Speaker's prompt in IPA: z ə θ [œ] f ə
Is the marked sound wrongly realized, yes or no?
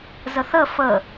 yes